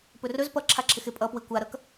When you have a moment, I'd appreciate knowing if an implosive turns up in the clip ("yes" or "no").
no